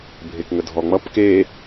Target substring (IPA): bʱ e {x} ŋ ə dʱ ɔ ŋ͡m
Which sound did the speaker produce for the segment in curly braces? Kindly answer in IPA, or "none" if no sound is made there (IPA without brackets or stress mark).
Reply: k